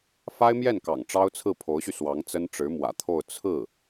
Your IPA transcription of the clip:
fa˥ɪ̯mjɛ˥˩nkɑ̰˨˩ŋ ʈ͡ʂɑ˥ʊ̯t͡sʰɹ̩˥˩pʰo˧˥ʊ̯ɕy˧ swɑ˧˥ŋt͡sə˥n ʈ͡ʂɻ̩˧˥mwä̰˨˩t̪ʰo˥˧ʊ̯ t͡sʰɹ̩˥˩

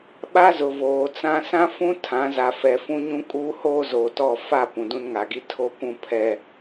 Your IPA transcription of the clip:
ɓa˦zʊ˨ voː˨t͡sã˦ sã˦fũ˦ tʰã˨˦za˨ fɛ˨fũ˦ɲũ˦ kʼuː˦hoː˦zoː˨tɔ˦˨ fa˦˨ pũ˨dũ˦nŋa˨ɡi˦ tʰo˦kʷũ˦pʰɛ˦

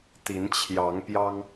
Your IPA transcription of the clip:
t̪i˨˦nt͡ɕʰjɑ˨˦ŋpjɑ˦ŋ

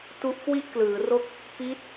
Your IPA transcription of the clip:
tu˦˥ʔkwi˥˩ʔklɯː˩˦ro˥˩k̚ | pi˦˥t̚

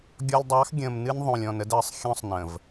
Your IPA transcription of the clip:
ɡʲɔ˨lʲdˤɑ˨˦x ɡʲə̃ː˨m nɨ˦n ðˤõ˨lʲɔ̃˨nə˦d əː˨sˤxʲɔ̃˦sˤnə̃ː˨v

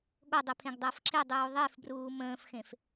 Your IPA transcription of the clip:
ɠodˤe pʰẽɡdˤəːfǁʰedˤuː ðˤefbruː mə̃ːfxẽf

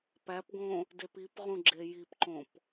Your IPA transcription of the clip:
pæpɡõ | depipʁũ ɡ͡ǁejipǃõp

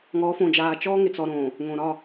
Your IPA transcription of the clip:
ŋɔː˨˦ fõ˨d͡ʒaː˨ t͡ʃɔː˦ŋɪ˨t͡sɔ˨ ɾõː˨ | ŋõ˨ɾɒ˦˨

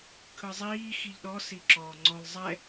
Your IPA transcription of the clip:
kʰɯzˤiː xiʎɗɔ siǁɔːŋ͡ǀɔlˠ zˤɛ

